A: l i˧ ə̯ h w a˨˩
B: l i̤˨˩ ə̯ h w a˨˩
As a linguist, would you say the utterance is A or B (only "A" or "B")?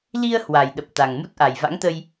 A